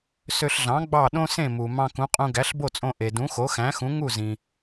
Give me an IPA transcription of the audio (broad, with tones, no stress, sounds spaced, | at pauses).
s ø˧ ɬ ɮ ɑ̃˩˥ ɡ͡b ɑ˥˩ ɗ õ˥ s ẽ˥˩ m u˩ m ɑ̃˧ k ũ˩˥ qʼ ũ˧ ɡ æ˩˥ ɬ b o˥˩ t͡sʼ õ˧ ʔ e˩ d ũ˩˥ x o˩˥ x æ̃˩˥ x ũ˩˥ ŋ u˥˩ z ĩ˩